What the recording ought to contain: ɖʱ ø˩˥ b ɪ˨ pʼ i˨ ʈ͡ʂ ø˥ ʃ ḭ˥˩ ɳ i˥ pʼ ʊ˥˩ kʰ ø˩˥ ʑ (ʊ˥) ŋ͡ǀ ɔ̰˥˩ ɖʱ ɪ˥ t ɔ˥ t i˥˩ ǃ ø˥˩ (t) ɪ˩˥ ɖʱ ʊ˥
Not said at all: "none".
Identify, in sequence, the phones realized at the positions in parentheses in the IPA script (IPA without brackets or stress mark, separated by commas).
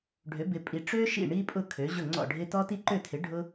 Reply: ʊ˥˩, tʰ